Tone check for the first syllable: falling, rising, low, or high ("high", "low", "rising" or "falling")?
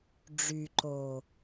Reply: low